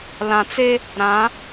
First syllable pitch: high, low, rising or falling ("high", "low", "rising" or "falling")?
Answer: low